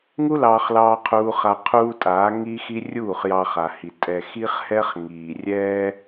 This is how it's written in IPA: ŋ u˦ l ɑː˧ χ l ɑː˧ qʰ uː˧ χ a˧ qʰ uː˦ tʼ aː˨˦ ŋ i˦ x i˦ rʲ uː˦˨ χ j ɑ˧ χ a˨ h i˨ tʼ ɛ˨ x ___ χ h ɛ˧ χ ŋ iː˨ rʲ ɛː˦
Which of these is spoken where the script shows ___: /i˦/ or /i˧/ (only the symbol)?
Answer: i˧